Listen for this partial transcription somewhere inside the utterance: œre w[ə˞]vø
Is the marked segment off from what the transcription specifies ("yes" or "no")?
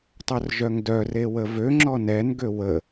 yes